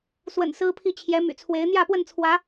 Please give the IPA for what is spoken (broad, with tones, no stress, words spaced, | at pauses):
swə̰˨˩n sɹ̩˦pʰi˥˨t͡ɕʰjɛ˨˦ my̰˨˩t͡sʰwe˨˦ɪ̯ n̪jä˥˨pwə˥˨nt͡sʰwä˨˦